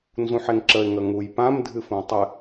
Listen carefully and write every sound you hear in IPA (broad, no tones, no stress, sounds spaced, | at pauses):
n z ũ ħ e ŋ ǁ ə ɪ̯ ŋ ə ŋ u j p ã m dʱ ɨ f ũ tˤ ɨ